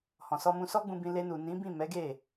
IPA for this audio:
h ɔ̃˨ s ɔ˧ m ũ˧ s ɔ˦ ɡ͡b ũ˧ b ĩ˧ l e˧ n u˨ n ĩ˨˦ b ĩ˦˨ m ɛ˨˦ ɡ e˦˨

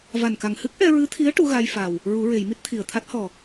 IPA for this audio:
v a˨˩ n k a˨˩ ŋ h ɨ˦˥ k̚ ʔ ɛ˧ ɹ ɨ˧˥ t̪ʰ i˧˥ ə̯ ʈ u˧˥ ɣ a˧ j f a˨˩ w | ɹ u˨˩˦ ɹ e˨˩˨ j m i˦˥ t̚ t̪ʰ i˨˩ ə̯ t̪ʰ a˦˥ t̚ h ɔ˨˩

